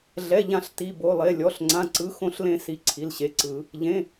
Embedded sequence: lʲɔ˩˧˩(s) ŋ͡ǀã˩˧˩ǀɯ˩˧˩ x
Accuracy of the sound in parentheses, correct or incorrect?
incorrect: ɬ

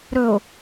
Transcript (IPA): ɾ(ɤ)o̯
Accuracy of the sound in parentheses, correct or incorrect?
incorrect: ɵ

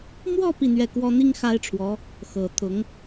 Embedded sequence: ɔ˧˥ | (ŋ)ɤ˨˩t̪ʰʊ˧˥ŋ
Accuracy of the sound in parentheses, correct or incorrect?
incorrect: x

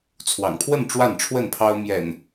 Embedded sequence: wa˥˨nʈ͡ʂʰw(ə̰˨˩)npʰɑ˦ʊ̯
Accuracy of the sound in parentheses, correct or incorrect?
incorrect: ə˥˨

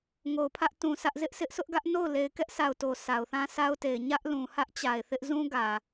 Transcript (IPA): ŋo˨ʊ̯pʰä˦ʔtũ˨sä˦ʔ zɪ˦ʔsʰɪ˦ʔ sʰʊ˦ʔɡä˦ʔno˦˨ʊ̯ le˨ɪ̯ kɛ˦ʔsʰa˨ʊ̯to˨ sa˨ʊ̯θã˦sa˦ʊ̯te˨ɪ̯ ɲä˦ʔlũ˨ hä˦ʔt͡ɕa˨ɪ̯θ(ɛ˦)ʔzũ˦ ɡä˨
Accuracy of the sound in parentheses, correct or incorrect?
incorrect: ɪ˦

